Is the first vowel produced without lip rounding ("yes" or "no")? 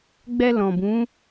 yes